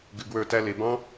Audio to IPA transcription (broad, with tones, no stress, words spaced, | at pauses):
ɡɨ˧ɡwə˞˥˧tæ˥ le˩˧bɑ̃˥